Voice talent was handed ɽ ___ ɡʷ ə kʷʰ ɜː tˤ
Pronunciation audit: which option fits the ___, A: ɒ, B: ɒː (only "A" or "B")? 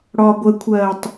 B